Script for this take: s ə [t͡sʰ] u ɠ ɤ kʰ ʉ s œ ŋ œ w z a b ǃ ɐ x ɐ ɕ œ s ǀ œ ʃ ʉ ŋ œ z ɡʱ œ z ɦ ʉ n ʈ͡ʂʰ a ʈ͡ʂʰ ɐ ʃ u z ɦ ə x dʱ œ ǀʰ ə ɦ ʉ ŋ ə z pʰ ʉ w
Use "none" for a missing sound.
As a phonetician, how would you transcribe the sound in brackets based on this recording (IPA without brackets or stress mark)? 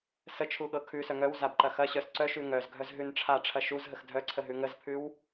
t͡ʃʰ